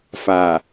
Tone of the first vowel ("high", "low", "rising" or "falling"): low